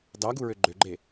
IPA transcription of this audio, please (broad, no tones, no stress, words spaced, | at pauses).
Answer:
dɑɡuɹø ɡ͡ǃøɡ͡ǃe